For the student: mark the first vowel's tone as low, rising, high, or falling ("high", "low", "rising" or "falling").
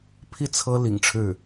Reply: falling